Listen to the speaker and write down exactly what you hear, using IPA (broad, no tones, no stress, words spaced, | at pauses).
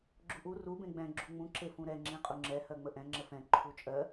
ɡ͡ǁuʔu ru bẽɡ͡bɛ̃ ɡ͡ǁuŋ͡mũ ǁefũɾɛ ŋ͡ǁĩqʼuŋ͡ǁɛ hɜŋ͡məʔɛ̃ ŋ͡ǁəfɛ̃ ǃʰut͡ʃʼɜ